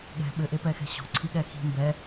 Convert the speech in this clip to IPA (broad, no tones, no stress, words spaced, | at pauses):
ɠɛ̤ ɓɘʔepɛxɛ̤ ɕɔ̤ǀʰiɠɛ xi̤ mbɛ